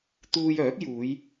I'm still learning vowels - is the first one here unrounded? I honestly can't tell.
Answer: no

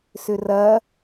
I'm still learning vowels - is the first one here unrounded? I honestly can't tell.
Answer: no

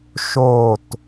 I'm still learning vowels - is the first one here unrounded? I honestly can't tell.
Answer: no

